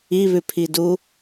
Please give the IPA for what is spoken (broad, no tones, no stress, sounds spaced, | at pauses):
i β ʉ pʰ i d u